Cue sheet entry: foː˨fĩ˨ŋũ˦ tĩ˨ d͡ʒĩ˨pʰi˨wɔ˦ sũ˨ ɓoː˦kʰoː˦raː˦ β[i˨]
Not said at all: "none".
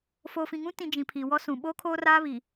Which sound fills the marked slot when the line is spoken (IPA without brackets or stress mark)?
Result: i˨